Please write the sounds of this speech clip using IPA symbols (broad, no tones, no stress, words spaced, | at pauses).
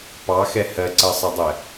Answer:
pɑxɛ hɜǀɜsˤʌdˤɛ